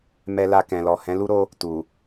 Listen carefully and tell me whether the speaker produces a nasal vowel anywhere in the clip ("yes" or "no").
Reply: yes